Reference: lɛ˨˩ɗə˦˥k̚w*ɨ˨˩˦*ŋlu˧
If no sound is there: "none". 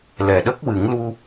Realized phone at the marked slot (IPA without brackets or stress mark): ɨ˨˩˦